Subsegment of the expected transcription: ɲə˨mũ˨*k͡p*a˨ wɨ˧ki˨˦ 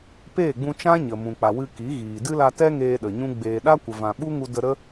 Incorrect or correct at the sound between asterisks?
correct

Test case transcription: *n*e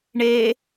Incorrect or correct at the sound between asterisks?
incorrect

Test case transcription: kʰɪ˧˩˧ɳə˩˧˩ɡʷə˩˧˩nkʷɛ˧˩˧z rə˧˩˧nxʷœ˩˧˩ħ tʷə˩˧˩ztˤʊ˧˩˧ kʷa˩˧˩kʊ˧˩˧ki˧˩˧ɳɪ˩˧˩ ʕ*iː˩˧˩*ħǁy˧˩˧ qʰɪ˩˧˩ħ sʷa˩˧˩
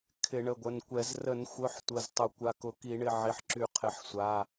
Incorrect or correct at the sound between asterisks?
incorrect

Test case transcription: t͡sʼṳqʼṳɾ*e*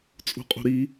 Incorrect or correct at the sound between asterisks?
incorrect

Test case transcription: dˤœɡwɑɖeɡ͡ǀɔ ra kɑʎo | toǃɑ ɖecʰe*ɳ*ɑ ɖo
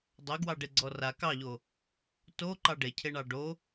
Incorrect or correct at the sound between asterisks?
correct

